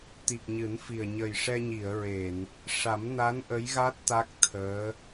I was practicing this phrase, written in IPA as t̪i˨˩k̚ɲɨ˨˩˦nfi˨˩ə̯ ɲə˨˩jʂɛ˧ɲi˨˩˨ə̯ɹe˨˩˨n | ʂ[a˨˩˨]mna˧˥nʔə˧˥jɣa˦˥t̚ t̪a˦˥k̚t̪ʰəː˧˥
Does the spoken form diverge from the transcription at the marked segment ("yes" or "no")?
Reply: yes